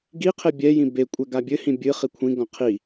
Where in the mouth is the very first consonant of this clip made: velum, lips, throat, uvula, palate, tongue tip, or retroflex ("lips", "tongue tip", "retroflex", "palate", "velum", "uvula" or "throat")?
velum